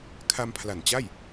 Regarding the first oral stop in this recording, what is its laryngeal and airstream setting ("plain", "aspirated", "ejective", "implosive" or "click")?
aspirated